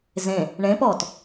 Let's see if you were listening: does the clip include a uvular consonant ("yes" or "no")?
no